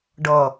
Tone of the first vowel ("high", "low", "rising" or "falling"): low